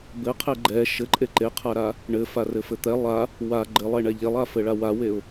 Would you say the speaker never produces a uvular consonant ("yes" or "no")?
no